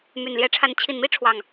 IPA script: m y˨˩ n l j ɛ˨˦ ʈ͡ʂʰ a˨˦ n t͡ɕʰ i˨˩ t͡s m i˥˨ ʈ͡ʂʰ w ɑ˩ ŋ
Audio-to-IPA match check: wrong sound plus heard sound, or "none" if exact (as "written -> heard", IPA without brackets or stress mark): t͡s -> n